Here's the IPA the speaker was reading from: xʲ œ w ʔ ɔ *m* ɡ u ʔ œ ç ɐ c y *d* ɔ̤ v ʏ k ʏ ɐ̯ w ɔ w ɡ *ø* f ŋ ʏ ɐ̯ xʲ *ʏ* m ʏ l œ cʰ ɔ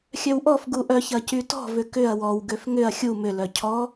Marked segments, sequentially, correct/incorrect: incorrect: f, incorrect: t, correct, incorrect: u

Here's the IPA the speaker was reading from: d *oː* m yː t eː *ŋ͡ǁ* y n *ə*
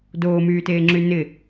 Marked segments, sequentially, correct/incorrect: correct, correct, incorrect: ɪ

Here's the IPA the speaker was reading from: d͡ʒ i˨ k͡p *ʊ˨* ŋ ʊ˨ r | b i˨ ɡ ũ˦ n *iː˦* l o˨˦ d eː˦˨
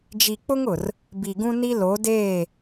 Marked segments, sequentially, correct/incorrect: incorrect: ʊ˦, incorrect: i˦

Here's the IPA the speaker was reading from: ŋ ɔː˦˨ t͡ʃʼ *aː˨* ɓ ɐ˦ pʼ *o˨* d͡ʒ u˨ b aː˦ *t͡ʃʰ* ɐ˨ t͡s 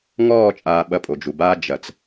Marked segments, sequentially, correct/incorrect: correct, correct, incorrect: d͡ʒ

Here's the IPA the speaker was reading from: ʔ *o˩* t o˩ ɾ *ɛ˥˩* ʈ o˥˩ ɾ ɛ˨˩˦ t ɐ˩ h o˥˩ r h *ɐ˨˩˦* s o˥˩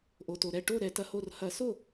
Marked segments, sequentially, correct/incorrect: correct, correct, correct

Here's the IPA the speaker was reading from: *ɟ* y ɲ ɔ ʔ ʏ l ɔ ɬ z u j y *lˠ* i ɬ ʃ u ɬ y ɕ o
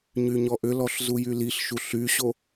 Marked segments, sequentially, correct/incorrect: incorrect: ɲ, incorrect: l

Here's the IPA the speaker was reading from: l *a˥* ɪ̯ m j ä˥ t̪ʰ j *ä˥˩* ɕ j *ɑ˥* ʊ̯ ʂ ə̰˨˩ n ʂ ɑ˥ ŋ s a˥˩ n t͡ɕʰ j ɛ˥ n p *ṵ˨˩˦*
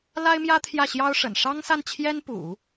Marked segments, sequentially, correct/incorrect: correct, correct, correct, correct

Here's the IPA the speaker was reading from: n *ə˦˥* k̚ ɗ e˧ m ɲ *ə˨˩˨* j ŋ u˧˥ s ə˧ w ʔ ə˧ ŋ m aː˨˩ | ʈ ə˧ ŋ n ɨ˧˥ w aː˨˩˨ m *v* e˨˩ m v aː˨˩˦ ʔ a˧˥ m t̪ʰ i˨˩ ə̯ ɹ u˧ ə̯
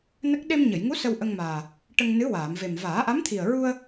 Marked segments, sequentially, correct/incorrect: correct, correct, correct

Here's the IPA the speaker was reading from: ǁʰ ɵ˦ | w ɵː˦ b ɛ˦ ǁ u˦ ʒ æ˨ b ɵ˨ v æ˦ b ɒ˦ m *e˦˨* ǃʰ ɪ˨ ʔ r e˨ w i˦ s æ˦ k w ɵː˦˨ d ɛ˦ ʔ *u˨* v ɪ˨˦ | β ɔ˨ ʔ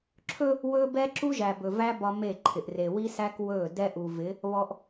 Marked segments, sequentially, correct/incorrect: correct, correct

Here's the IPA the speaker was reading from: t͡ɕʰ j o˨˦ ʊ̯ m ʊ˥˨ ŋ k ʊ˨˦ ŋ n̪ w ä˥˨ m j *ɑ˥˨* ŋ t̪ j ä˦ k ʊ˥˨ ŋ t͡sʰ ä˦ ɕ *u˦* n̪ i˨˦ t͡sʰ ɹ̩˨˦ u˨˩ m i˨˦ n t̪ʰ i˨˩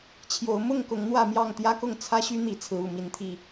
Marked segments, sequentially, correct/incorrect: correct, incorrect: y˦

